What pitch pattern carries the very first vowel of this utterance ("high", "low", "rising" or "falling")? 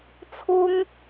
high